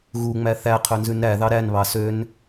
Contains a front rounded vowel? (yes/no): yes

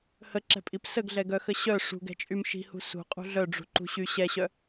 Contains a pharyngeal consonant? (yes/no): no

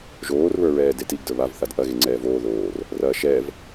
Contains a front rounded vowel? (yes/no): no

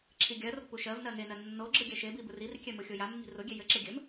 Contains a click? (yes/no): yes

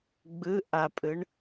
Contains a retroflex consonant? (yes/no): yes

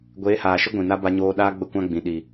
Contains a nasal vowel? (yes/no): yes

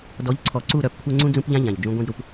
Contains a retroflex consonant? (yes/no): no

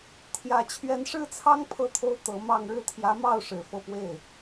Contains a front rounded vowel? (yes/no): no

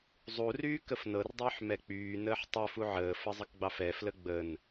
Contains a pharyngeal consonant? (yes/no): yes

